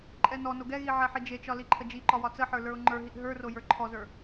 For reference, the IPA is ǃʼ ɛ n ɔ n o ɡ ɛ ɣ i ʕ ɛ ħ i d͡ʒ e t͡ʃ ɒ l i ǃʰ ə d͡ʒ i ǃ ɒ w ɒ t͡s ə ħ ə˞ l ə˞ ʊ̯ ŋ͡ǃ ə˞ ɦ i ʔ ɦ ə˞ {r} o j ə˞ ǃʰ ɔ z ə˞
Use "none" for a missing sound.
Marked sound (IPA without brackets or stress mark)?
r